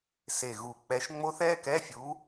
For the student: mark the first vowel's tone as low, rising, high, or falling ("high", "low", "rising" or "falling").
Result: low